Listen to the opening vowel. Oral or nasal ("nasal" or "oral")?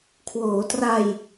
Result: oral